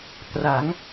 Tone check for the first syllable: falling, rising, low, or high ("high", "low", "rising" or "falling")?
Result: rising